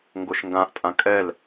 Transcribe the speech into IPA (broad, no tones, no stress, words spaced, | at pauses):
ŋɡoʃŋɡãʔ tʼãkʼɛl